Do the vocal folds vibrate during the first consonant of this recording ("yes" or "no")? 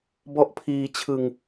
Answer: yes